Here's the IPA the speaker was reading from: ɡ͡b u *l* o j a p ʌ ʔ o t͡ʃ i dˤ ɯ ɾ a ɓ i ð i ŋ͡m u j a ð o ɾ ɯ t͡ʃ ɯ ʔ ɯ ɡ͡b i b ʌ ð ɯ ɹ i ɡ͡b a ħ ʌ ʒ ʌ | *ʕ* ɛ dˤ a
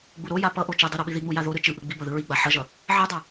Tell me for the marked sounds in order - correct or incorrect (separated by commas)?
incorrect, correct